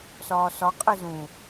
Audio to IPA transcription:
sɒːsɒ qʼezũ

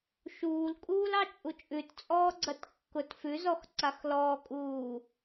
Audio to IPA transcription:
ʃuːlkʼuːlɑ t͡ʃʼut͡ʃʼʉt t͡sʼɔːɡ͡ǀɐtkːʊt fʉzɔx ǀaxlɔːkʼuː

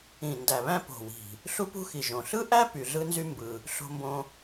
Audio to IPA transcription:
ĩ˨˩ndæ˨˩βæ̃˥ po̤˨˩wi̤˨˩ | ɬu˥pṳ˥xi˨˩ʒõ˨˩ ɬɯ˥ʔæ˥ py˨˩ɮɯ˥nzy˥ mbɯ˨˩ | ɬo̤˥mbõ˥

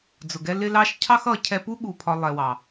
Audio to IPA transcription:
d͡zʊ˨ɡɛ˧ lɪ˧lɑ˧ʃ cʰɑ˦xʌ˨˦cʰɛ˧pu˦ ɠu˨pʰɒ˨ lˠɛ˨wɑ˨

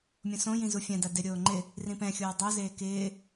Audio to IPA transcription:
mʲõsõjĩ zufʲãda dɪɾʲoː ŋ͡ǃɪ | rĩpɛ̃xʲoː dˤozeː kɪː

